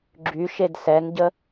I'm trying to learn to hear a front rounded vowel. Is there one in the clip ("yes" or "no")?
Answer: yes